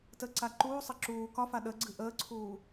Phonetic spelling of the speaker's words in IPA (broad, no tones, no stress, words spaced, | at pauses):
təǀa ǃuːsˤɘ ǁuː kɒfa ɗəɡ͡ǀɨ ʔəːǀʰuː